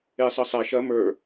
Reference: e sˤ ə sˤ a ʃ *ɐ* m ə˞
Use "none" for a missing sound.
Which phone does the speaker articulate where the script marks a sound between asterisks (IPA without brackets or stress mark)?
ɐ